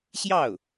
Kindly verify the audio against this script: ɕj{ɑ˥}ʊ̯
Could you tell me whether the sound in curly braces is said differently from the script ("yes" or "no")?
yes